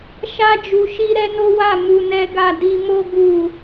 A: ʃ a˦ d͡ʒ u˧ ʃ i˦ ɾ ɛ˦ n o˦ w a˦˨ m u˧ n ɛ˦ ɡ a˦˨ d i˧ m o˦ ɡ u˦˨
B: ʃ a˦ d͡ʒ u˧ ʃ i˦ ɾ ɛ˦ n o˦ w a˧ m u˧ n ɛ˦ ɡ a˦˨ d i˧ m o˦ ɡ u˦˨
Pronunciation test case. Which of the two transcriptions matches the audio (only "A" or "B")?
A